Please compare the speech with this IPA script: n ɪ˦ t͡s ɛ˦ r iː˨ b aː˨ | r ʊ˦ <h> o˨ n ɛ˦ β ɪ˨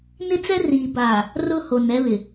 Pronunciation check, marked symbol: correct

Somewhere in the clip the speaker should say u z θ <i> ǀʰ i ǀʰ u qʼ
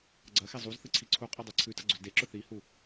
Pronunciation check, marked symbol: incorrect: ɨ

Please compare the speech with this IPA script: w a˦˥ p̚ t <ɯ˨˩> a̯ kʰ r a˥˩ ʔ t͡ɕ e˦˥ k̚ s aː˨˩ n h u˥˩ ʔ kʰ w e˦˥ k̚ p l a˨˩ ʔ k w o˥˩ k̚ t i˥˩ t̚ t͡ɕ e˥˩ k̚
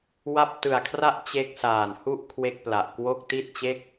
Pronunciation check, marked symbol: correct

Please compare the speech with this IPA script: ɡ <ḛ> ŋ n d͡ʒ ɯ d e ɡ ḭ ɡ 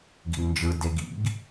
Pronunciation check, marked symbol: incorrect: ḭ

